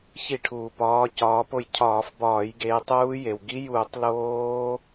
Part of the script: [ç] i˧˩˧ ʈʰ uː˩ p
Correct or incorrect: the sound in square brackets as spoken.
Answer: correct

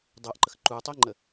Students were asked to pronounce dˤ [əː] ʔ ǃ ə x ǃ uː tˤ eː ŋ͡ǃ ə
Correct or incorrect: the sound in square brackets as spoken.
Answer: correct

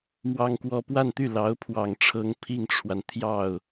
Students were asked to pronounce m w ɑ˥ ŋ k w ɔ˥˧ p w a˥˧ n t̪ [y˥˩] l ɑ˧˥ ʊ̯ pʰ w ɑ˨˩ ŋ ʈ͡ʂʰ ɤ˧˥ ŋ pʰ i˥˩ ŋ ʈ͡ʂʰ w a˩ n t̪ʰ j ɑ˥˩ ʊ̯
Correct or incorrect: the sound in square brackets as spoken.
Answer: correct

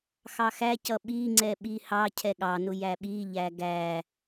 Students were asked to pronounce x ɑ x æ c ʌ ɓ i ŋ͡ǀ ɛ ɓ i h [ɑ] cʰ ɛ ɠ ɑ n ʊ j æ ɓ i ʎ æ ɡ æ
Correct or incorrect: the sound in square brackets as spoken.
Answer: correct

